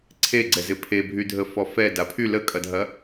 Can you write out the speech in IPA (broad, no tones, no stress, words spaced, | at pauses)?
ǀʰeɡ͡ǀɛ zɪpʰebʱydʱə fɔfɛ dapʰy ləkʼɐdʱɐ